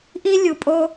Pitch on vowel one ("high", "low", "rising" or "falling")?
high